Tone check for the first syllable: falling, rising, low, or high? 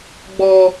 high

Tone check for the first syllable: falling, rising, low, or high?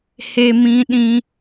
high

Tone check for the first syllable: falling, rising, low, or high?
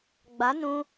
rising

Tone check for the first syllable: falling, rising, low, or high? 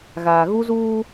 low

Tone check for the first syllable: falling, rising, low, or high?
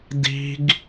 high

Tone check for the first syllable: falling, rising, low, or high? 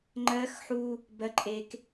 high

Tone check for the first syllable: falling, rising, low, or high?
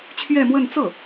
falling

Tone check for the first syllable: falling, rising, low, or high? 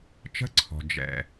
high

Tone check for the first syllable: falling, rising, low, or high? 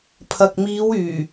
low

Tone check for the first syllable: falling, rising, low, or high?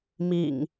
low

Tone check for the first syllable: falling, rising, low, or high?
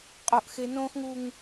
high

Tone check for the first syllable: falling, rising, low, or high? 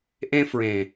high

